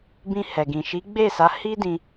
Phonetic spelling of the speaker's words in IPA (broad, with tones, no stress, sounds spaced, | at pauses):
b ĩ˧ h ɛ˨ ɡ ĩ˨ ʃ i˨˦ ɡ͡b e˦˨ s a˨˦ h i˦ d ĩ˧